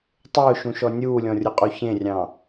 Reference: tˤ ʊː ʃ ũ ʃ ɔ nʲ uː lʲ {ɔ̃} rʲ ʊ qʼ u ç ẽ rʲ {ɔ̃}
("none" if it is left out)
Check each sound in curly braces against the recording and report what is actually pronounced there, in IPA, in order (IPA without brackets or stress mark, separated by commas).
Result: ɔ̃, ɑ̃